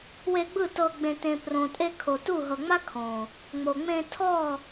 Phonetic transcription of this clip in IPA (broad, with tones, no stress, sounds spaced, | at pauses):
w e˧ ɡ͡b ɯ˦˨ t ɤ˧ ɡ͡b ẽ˨ t ẽ˨ p r õ˨ tʼ e˧ kʰ o˨ t u˦˨ ɦ ɤ˨ ŋ͡m a˦ kʰ õ˨ | ŋ͡m o˨ ŋ͡m ẽ˧ tʰ ɔ˦˨